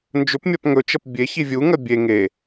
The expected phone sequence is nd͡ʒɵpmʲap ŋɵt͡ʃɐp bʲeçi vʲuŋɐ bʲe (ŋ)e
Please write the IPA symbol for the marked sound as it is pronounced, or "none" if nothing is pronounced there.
ŋ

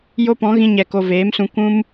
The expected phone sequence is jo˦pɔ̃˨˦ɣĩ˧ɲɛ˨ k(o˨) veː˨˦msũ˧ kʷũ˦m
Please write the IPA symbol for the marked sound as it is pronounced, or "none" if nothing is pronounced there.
o˨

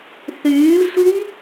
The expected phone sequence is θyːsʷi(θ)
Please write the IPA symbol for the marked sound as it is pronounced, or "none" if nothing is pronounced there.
none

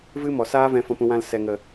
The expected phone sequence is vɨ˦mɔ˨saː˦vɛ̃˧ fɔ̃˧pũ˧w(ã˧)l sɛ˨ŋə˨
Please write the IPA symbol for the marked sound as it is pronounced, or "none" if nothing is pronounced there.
ã˧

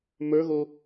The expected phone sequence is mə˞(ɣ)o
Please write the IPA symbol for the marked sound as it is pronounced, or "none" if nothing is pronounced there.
ɣ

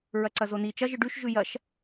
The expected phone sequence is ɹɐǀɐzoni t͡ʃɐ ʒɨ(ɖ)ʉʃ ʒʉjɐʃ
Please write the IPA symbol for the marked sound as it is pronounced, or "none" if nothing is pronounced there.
ɖ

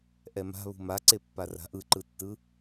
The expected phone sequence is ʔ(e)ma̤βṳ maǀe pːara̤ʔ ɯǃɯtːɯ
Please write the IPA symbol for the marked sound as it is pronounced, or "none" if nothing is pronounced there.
ɛ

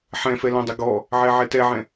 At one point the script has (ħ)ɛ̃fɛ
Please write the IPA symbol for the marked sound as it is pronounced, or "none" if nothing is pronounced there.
ħ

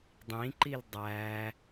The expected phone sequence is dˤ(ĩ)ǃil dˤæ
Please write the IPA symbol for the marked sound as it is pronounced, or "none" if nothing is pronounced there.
ĩ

